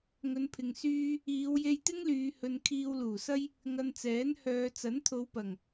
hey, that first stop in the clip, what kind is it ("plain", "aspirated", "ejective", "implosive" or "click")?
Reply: aspirated